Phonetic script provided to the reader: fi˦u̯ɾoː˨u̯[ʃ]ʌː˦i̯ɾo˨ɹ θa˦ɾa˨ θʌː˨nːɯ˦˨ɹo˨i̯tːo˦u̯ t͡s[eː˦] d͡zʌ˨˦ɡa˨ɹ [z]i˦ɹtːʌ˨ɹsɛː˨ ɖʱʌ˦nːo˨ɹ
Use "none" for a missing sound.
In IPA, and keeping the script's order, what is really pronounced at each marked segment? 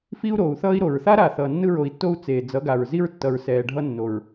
θ, eː˨, z

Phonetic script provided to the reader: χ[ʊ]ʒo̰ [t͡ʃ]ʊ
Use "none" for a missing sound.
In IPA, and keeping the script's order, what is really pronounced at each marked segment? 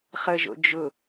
ə, d͡ʒ

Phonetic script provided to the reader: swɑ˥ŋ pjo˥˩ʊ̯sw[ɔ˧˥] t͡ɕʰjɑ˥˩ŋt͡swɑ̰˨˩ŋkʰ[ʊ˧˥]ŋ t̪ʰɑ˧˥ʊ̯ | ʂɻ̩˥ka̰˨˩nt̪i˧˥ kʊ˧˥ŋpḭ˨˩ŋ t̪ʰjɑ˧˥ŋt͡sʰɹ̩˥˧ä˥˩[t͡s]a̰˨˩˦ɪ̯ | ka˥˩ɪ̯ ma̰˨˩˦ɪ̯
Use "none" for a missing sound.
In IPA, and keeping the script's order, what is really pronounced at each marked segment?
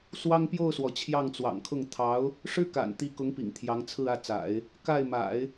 ɔ˩, ʊ˥˩, t͡s

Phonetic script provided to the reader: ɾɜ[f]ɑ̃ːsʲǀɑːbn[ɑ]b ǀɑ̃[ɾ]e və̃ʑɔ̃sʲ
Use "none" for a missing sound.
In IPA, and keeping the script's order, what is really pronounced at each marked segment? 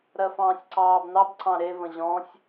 f, ɑ, ɾ

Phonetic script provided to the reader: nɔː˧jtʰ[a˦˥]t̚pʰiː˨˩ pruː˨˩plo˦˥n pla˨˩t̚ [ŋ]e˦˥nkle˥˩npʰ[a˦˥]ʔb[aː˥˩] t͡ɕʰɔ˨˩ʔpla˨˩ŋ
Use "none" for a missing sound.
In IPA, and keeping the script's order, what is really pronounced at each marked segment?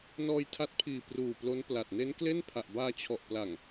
a˦˥, n, a˨˩, aː˧

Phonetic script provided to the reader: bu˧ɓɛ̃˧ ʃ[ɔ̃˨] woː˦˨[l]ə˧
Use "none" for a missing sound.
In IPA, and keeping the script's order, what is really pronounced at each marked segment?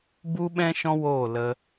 ɔ̃˧, l

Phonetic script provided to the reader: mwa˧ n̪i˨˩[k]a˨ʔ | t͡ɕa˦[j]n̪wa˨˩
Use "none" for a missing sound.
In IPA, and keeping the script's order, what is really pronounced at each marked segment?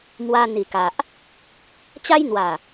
k, j

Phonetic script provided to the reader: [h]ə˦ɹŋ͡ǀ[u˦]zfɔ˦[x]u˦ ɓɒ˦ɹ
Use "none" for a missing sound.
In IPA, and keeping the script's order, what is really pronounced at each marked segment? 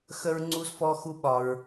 x, u˦, x

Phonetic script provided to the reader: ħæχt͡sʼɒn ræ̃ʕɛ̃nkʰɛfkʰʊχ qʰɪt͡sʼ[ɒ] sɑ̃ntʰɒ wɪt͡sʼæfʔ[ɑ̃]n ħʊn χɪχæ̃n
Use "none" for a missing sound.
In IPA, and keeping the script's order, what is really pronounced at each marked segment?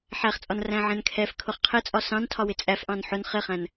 ɒ, ɑ̃

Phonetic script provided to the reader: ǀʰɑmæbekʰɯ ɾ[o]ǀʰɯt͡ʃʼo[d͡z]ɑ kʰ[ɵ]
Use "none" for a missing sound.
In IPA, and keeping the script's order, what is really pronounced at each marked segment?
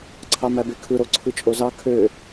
o, z, ø

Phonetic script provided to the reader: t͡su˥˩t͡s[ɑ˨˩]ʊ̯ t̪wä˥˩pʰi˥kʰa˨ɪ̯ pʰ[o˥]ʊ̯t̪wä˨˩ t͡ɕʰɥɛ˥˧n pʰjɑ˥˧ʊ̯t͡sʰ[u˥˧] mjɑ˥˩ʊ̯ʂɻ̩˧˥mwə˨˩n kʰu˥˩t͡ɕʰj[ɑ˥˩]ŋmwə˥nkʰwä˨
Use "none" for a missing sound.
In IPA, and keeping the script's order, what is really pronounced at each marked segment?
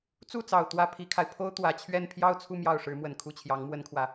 ɑ˨˩, o˥, u˥˧, ɑ˧˥

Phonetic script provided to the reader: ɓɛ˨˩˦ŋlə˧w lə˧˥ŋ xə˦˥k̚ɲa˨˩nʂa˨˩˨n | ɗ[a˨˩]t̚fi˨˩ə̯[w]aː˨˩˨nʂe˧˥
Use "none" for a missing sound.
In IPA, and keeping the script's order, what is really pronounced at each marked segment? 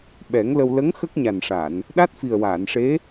a˦˥, w

